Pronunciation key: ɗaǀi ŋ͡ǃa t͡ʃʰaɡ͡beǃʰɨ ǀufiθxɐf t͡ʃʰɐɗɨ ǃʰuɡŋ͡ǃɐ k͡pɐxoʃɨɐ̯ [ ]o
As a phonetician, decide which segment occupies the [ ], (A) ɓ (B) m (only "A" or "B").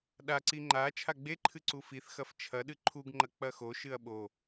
A